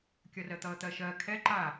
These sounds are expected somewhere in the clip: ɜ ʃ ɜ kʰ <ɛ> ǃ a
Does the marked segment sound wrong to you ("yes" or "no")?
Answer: no